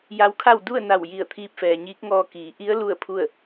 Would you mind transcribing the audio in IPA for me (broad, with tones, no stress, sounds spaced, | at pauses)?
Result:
j a˧˥ w kʰ a˥˨ w d u˥˨ ə̯ n a˧˩ w j i˧˩ ə̯ t̪ʰ iː˧ p̚ f ɛː˩ ɲ iː˧˥ k̚ ŋ ɔː˧ k iː˩˧ ʔ i˧˥ ə̯ l u˥˨ ə̯ pʰ u˥˨ ə̯